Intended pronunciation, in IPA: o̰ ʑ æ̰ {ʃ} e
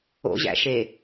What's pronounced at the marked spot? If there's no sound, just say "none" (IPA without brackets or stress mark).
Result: ʃ